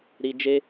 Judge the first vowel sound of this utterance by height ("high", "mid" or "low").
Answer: high